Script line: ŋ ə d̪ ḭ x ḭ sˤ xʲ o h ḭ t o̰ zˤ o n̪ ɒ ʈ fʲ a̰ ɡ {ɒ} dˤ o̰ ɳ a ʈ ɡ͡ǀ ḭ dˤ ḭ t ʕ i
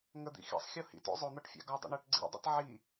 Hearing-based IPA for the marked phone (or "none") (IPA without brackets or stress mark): ɒ